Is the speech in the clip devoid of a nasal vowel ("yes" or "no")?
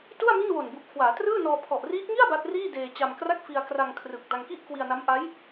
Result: yes